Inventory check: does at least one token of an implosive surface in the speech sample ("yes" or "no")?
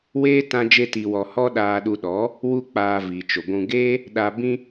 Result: yes